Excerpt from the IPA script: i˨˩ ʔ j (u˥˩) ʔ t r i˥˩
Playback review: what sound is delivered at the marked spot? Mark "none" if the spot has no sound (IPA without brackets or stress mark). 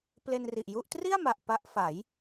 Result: u˥˩